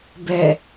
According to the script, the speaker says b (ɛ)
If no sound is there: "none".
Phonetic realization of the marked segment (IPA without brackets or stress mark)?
ɛ